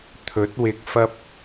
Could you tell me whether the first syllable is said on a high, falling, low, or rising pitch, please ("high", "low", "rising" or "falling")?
rising